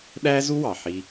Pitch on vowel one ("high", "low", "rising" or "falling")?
high